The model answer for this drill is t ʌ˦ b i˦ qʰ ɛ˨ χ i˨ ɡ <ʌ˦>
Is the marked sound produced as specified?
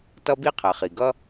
yes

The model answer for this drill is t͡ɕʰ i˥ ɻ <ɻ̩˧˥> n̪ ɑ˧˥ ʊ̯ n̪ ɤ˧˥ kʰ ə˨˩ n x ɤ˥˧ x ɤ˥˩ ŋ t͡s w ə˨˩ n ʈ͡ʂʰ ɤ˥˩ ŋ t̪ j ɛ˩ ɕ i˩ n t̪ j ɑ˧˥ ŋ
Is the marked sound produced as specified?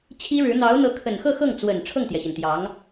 yes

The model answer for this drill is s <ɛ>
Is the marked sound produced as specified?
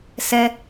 yes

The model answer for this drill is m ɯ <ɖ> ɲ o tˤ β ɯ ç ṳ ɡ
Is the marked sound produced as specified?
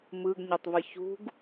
no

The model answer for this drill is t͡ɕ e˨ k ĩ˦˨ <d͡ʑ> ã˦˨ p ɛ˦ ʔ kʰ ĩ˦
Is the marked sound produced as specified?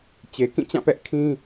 no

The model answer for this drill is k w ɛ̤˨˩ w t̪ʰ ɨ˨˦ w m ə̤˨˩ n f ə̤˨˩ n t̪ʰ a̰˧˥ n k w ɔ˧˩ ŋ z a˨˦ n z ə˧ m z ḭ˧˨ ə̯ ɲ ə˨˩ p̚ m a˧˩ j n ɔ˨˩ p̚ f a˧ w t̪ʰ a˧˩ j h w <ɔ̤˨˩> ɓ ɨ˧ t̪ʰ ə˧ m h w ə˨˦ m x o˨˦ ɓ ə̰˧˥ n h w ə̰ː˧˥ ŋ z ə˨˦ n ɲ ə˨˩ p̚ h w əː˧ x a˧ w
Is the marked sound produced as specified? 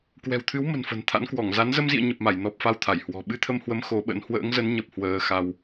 yes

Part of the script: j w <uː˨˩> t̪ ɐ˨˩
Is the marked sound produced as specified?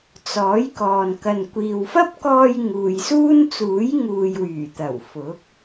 no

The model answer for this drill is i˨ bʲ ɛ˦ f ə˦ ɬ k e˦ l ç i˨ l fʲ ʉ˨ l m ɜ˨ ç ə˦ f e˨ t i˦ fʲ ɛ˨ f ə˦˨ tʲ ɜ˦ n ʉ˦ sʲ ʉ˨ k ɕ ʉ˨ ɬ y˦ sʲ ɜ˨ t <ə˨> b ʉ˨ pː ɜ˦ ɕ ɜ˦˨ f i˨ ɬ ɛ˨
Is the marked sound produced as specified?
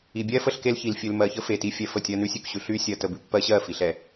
yes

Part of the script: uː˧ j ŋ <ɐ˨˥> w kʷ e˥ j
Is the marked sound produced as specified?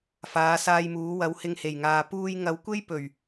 yes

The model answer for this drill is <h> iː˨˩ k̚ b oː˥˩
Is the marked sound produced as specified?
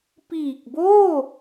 no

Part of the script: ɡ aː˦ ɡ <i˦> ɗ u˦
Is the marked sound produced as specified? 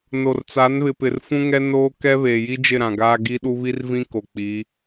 yes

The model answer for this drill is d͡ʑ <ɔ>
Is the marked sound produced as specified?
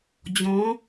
no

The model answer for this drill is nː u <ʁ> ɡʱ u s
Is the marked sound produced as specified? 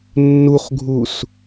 no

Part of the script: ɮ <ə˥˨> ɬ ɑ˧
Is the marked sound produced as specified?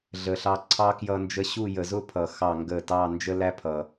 no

